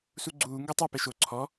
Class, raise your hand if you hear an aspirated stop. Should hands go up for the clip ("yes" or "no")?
yes